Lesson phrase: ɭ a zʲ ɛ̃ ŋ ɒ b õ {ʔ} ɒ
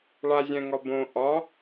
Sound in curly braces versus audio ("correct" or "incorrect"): correct